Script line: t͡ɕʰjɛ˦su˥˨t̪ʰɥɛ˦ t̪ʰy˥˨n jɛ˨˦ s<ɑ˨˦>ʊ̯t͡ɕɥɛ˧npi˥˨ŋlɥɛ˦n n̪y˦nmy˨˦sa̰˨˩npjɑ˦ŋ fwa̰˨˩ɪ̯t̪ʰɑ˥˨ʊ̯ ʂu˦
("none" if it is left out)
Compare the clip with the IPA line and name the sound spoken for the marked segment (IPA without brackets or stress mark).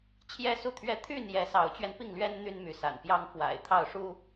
ɑ˨˦